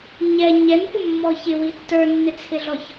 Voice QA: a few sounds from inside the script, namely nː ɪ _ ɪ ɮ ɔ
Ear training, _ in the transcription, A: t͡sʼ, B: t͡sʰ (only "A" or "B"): B